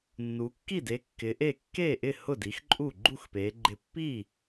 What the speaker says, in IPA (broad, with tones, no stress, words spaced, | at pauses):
nːu˨˦ kːi˥˩de˨˦ kːɪ˨˦ʔe˥˩ kːe˥˩ʔɪ˥˩ hʊ˥˩di˨˦xǃʼu˥˩ ɡ͡ǃu˥˩xpe˨˦ ɡ͡ǃɪ˥˩ pːi˥˩